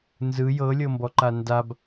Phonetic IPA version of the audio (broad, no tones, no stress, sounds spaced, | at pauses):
n z ɯ j ɤ lʲ ɤ m b ɔ ǃ a n d a b